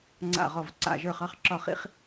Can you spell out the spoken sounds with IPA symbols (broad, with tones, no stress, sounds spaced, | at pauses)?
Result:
ŋ͡ǀ a̰˥˨ ʁ ɔ˥˨ v ǀ a̰˥˨ ʒ ə˞˥˨ χ ɑ˥ χ ǁ ɒ˥˨ χ ḭ˥ χ